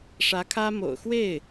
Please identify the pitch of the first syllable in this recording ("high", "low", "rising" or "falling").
rising